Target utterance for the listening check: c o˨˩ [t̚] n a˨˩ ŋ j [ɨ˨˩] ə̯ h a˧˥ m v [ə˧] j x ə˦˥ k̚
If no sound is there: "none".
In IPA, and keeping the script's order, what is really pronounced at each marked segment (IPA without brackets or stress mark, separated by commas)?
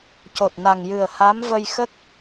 t̚, ɨ˨˩, ə˧